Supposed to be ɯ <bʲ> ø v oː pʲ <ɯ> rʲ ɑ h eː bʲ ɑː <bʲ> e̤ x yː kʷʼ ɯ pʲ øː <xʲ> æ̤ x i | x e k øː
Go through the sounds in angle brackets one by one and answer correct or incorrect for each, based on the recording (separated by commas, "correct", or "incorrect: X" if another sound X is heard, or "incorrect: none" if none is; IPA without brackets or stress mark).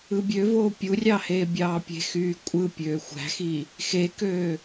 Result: correct, incorrect: u, incorrect: pʲ, incorrect: xʷ